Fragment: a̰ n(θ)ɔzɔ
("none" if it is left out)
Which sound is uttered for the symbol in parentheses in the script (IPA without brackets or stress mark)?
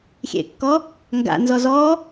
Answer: z